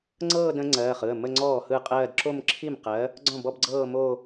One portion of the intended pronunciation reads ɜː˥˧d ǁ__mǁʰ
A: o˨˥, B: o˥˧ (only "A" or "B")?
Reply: B